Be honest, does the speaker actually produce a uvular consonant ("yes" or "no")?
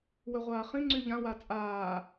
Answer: yes